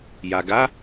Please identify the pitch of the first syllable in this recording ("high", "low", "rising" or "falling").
low